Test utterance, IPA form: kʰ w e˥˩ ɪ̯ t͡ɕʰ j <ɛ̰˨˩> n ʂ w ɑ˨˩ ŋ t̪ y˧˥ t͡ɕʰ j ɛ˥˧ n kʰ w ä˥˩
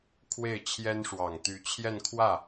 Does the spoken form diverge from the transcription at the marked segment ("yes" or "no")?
yes